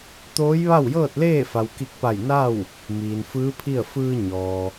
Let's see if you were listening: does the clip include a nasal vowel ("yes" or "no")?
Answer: no